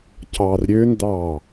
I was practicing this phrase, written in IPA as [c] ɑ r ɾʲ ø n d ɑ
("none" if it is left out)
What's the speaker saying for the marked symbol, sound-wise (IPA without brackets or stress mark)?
c